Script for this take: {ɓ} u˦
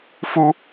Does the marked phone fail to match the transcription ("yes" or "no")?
yes